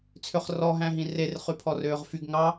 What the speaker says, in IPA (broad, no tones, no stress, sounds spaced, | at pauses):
t͡sʰ ø χ r ɔ ɦ æ̃ ɦ ĩ r e r χ y pʰ ɔ r øː ʁ f y ɡ ŋ ɑ